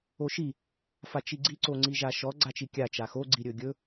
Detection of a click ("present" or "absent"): present